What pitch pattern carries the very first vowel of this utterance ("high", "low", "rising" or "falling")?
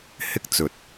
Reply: high